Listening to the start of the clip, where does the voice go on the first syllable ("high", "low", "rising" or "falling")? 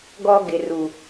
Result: high